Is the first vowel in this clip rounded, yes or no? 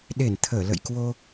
no